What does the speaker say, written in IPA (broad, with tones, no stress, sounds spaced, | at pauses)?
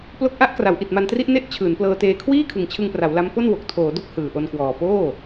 p l o˦˥ k̚ ʔ a˦˥ ʔ k r a˩˦ w ʔ i˨˩ t̚ m a˧ n t r i˦˥ ʔ n e˥˩ ʔ t͡ɕʰ ɯː˩˦ n p l ɤː˧ t eː˧ kʰ w iː˥˩ kʰ ɯ˨˩ ŋ t͡ɕʰ ɯ˧ ŋ p r a˩˦ w l a˦˥ m p o˥˩ n w o˨˩ k̚ tʰ oː˩˦ d o˦˥ k̚ h ɯː˨˩ ʔ o˧ n k w ɔː˨˩ p oː˥˩